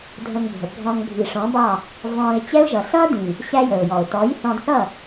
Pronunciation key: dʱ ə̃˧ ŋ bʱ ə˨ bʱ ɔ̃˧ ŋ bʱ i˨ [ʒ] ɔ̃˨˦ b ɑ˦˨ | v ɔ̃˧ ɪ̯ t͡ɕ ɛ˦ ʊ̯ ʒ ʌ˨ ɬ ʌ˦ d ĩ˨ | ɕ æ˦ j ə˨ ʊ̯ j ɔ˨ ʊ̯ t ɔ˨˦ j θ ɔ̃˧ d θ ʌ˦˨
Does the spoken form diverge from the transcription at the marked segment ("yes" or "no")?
yes